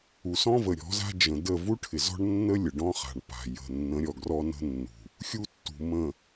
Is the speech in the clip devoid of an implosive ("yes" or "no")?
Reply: yes